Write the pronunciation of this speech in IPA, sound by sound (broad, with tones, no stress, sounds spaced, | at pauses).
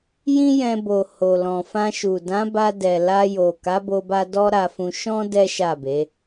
j ĩ˦ j ɛ̃˧ b o˨ h o˨ l ɔ̃˨ f ã˧ ʃ u˨ d ã˨˦ b a˧ d ɛ˨ l a˧ j o˨ k a˨˦ b o˧ b a˧ d ɔ˦ ɾ a˧ f ũ˧ ʃ ɔ̃˦ d ɛ˦ ʃ a˦˨ b e˨˦